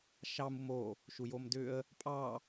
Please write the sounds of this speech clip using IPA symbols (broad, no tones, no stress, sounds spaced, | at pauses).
ʃ ɑ m u m o | ʃ u j o m d ʏ ə̯ | pʼ ɑ